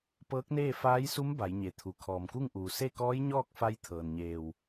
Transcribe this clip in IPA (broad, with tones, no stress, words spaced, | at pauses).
pɤː˧˥k̚neː˥˨ faː˧˥jsu˧˥m ba˩˧jɲe˩t̪ʰu˩ kʰɔː˩mku˥˨ŋʔuː˩ se˥˨kɔː˧˥jɲɔː˥˨k̚fa˧j t̪ʰɤː˩nɲeː˧˩w